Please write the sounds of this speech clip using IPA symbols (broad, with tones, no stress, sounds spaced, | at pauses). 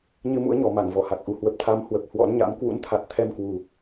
ɲ ɨ˧ m ṵ˧˥ ə̯ ɲ ɔ˨˩ m a˧˩ ŋ v ɔ˧˩ h a˨˩ k̚ ʔ u˨˩ h w ə˨˩ p̚ t̪ʰ a˨˦ m h w ə˨˩ p̚ h w ɔ̰˧˥ n ɲ a̰˧˥ m k w ṵ˧˥ n t̪ʰ a˨˩ t̚ t̪ʰ ɛ˧ m k w u˨˩